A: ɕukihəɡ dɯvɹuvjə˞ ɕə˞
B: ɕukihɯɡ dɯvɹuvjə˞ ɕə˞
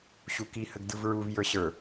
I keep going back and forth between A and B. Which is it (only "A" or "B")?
A